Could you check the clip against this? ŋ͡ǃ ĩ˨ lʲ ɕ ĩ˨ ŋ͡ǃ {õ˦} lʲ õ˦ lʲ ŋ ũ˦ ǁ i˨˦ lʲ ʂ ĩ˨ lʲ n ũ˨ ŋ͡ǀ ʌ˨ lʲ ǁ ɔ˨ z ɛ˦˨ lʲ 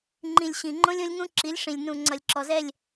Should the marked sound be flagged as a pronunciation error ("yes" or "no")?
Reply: no